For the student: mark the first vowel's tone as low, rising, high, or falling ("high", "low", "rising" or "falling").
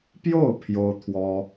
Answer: falling